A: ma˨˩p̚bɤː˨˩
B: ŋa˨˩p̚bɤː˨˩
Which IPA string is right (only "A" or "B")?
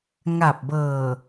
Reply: B